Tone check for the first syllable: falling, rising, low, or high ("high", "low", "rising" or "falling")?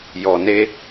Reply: low